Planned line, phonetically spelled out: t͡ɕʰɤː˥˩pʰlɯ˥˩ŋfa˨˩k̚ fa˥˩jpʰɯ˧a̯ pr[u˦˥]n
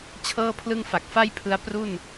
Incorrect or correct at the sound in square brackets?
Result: incorrect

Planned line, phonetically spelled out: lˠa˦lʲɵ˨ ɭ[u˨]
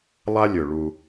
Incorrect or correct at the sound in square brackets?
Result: incorrect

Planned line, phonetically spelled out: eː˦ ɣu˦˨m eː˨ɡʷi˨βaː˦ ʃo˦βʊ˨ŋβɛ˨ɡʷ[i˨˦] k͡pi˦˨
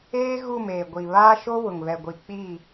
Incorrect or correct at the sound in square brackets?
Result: incorrect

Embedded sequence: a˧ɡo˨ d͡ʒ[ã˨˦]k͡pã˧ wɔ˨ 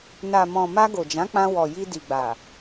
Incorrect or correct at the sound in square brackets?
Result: correct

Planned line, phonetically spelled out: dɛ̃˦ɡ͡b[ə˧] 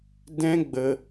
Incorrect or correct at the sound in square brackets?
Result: correct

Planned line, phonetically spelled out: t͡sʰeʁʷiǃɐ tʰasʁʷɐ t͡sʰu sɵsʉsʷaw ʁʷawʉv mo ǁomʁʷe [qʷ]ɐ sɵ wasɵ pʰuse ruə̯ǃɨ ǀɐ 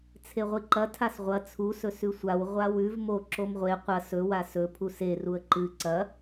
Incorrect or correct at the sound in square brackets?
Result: correct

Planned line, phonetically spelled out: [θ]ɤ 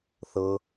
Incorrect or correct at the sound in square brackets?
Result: correct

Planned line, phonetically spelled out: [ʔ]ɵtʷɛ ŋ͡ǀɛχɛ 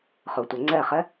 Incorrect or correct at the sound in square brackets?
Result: incorrect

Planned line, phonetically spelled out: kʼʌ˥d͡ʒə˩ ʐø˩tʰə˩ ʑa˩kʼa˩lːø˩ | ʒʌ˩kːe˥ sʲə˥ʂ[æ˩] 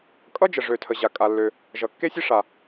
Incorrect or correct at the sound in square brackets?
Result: incorrect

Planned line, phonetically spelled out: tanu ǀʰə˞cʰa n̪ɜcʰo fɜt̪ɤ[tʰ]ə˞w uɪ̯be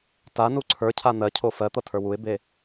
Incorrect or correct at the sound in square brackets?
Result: correct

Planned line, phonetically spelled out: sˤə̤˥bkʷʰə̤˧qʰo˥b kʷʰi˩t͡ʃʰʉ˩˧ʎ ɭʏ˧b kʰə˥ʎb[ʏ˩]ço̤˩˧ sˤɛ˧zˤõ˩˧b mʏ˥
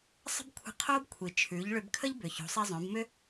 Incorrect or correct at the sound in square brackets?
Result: correct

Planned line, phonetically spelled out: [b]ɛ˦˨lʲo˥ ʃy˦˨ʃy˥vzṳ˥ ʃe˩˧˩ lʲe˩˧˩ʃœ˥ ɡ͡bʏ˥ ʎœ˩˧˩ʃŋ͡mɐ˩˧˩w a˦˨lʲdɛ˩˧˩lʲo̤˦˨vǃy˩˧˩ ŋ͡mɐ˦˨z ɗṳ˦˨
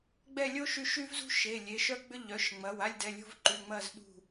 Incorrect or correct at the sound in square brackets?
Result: incorrect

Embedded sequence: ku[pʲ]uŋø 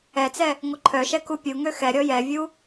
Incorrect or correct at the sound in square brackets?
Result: correct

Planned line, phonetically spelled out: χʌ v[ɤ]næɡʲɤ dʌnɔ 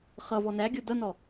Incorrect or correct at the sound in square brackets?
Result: incorrect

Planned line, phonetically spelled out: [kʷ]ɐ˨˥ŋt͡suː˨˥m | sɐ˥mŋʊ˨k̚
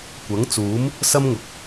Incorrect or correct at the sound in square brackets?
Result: correct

